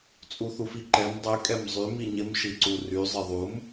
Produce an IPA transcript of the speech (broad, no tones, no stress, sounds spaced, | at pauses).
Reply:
t͡sʼ u θ u f i ǃ ɛ m dˤ y kʼ ɛ m zˤ y m i ɲ ɪ m ʃ i ǀ u r y zˤ ɪ ðˤ u m